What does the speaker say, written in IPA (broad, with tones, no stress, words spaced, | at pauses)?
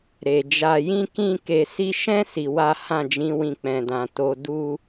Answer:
ɾe˨d͡ʒa˧jĩ˦ kĩ˦ ke˧si˦ ʃɛ̃˦ si˧wa˦ hã˦˨d͡ʒĩ˨˦wĩ˧ k͡pɛ̃˨dã˨ to˧du˦